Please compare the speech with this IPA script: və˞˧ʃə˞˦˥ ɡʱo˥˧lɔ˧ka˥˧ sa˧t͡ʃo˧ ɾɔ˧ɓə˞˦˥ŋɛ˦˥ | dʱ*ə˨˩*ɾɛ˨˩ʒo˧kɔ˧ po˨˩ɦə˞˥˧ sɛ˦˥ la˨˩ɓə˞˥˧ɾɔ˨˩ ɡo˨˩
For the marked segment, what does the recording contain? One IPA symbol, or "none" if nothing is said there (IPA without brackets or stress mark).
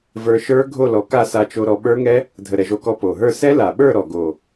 ə˨˩